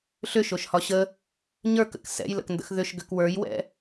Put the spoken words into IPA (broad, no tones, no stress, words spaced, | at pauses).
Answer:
ɬʏʃoʃhɒ ɕə | ɲə˞kə̰k sɛ̰jlə̰kndə̰x ðʏʃɡʏk wə˞jwɛ̰